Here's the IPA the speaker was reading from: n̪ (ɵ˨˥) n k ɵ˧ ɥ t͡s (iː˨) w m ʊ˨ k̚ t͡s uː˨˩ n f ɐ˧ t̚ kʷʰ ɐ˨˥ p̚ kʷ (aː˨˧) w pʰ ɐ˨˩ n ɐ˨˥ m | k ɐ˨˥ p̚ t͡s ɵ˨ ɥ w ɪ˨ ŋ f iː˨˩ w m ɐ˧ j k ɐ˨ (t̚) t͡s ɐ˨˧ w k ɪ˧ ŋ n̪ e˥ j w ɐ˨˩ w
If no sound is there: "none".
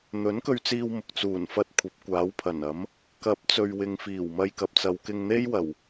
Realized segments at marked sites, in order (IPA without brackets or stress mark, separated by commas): ɵ˨˥, iː˧, aː˨˥, p̚